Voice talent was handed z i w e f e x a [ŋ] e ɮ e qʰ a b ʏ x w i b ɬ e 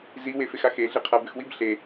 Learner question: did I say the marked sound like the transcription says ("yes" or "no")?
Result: no